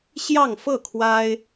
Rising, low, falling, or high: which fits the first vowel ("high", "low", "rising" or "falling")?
falling